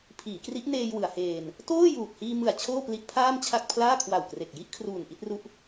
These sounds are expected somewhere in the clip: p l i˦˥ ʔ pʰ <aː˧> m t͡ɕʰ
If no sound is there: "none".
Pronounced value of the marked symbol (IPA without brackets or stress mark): aː˥˩